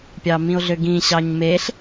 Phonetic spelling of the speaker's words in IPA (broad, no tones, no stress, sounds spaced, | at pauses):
pʲ ɑ m ĩ o̯ ɮ ø ɡ ĩ ɕ ɑ ɲ m e ɬ